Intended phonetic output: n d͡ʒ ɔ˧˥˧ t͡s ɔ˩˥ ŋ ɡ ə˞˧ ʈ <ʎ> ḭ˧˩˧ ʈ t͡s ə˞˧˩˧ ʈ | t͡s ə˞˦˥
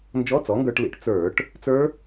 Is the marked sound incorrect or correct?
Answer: incorrect